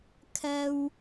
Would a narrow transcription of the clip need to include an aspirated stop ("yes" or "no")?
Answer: yes